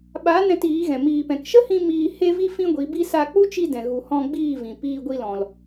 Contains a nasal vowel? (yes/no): yes